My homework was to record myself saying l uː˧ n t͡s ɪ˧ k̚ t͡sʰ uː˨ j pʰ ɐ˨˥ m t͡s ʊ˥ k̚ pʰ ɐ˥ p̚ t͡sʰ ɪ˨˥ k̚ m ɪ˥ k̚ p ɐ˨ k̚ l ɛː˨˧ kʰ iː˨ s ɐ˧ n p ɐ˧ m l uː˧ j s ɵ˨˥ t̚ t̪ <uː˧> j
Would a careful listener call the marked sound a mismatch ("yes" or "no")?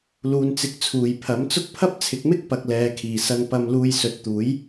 yes